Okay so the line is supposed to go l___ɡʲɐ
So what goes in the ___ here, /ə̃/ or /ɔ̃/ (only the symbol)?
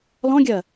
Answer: ɔ̃